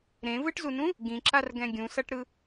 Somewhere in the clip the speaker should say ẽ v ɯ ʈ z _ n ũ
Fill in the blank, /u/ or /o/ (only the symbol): u